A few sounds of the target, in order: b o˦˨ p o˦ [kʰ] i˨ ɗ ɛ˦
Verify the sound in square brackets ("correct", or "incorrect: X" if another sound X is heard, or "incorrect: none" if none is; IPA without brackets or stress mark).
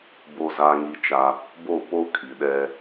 correct